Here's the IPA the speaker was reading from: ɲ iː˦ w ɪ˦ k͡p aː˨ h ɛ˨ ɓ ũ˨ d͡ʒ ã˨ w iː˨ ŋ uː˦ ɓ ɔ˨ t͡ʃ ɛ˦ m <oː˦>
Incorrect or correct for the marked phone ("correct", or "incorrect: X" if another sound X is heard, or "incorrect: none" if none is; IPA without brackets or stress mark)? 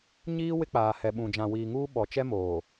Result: incorrect: oː˨